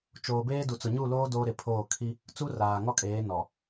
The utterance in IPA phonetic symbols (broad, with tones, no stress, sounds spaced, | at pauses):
t͡ʃ oː˨ b eː˦ d u˨ t͡s ʊ˨ ɲ u˦˨ l oː˦ d oː˦ ɾ ɪ˨ pʰ oː˦˨ kʰ i˦ | t͡s u˦ r aː˨ ŋ ɔ˦ kʼ eː˨˦ n ɔ˨